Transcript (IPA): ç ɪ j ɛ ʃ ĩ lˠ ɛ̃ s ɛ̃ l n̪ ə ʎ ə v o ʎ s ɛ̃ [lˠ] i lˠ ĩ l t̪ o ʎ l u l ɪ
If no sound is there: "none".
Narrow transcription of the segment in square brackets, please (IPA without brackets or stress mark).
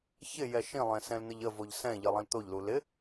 ʎ